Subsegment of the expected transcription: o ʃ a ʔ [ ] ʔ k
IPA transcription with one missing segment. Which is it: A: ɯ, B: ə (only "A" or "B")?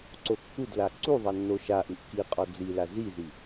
A